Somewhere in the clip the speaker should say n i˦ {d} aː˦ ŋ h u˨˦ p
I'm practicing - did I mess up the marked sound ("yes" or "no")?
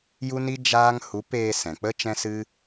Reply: yes